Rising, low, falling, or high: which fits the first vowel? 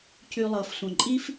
low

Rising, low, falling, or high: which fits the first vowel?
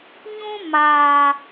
high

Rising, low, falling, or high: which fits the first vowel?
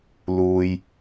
low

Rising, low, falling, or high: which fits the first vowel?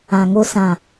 low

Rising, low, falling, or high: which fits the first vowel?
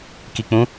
low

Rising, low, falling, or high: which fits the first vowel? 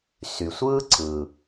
low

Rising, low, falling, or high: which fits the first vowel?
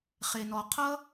low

